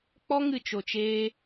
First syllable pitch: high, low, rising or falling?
high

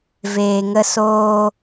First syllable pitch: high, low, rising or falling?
low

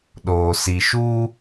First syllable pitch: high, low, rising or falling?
low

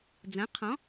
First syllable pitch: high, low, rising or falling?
rising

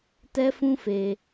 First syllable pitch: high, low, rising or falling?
high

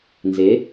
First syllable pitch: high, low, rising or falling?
rising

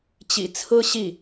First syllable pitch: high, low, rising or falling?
low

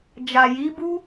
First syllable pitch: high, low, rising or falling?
low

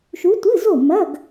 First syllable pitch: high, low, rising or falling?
rising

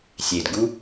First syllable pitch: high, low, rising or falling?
low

